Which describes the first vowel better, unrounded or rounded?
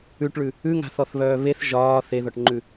rounded